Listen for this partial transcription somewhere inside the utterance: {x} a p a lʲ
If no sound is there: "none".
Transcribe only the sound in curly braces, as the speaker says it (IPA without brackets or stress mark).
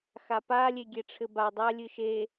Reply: x